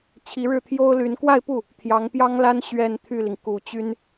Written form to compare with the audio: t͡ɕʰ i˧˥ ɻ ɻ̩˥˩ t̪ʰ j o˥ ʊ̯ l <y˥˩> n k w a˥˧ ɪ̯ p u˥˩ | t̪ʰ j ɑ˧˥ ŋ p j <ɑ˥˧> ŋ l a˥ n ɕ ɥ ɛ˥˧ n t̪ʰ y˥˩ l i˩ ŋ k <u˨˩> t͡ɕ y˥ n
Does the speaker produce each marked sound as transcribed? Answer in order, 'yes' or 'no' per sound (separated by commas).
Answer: no, no, yes